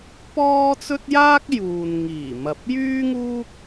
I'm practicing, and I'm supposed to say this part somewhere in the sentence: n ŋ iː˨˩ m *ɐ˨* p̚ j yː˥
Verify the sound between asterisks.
correct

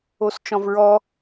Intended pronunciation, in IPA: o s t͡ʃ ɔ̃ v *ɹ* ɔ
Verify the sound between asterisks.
correct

